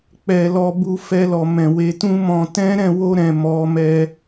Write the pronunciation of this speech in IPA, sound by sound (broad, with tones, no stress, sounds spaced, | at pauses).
k͡p ɛ˧ l ɔ˧ b u˧ f ɛ˧ l ɔ˨ m ɛ̃˨ w e˨˦ t ũ˦ m ɔ̃˧ t ɛ̃˦ ɾ ɛ̃˦˨ w o˧ ɾ ɛ̃˨ m ɔ˨˦ m ɛ˧